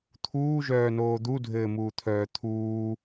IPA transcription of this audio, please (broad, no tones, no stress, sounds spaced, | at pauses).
t̪ʰ uː ʒ œː n oː d̪ u dʱ ɘː m uː t̪ʰ œː t̪ʰ uː